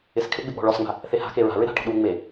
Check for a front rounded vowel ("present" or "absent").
absent